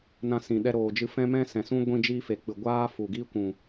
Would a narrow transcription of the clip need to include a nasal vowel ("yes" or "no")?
yes